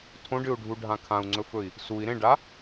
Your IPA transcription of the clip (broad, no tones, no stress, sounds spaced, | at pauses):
tʰ õ ɖ ɨ u̯ ɖʱ u ɖʱ ã kʰ ã u̯ ŋ͡ǀ ɵ f ɵ i̯ | s u i̯ ɾ ẽ ɖ a